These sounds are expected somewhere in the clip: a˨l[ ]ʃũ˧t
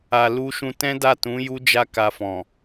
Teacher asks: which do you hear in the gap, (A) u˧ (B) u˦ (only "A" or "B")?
A